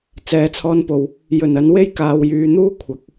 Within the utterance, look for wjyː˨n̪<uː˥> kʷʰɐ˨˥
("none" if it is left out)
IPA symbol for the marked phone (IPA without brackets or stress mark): uː˥